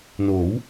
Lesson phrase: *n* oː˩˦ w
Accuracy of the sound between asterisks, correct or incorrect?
correct